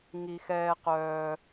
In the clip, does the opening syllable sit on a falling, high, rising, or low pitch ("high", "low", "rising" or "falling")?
low